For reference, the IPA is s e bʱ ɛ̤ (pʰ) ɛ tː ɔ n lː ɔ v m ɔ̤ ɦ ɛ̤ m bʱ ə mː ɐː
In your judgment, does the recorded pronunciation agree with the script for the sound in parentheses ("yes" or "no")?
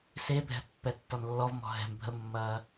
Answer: no